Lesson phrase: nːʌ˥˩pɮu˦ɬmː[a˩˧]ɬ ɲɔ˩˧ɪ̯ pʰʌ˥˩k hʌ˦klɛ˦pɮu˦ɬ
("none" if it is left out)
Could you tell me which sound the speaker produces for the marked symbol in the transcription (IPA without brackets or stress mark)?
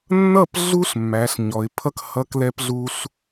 æ˩˧